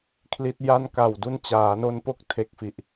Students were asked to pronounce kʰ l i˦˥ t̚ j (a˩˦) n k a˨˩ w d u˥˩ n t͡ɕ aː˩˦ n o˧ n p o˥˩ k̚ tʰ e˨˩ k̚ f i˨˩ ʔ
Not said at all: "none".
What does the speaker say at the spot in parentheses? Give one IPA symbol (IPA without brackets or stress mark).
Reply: a˥˩